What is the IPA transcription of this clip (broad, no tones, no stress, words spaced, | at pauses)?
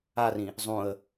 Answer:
arĩ | zˤũə̯